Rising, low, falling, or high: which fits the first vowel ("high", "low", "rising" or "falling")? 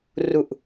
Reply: low